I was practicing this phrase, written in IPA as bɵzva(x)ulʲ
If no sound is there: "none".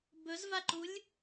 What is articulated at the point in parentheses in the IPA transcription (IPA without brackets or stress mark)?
ǃ